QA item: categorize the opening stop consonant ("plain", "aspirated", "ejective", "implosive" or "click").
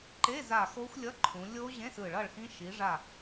click